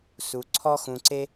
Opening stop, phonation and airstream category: click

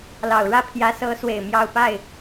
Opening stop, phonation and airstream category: aspirated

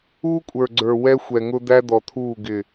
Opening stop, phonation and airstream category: ejective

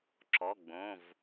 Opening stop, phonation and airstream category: click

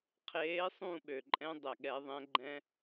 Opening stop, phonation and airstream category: aspirated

